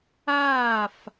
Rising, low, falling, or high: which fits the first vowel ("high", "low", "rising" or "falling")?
falling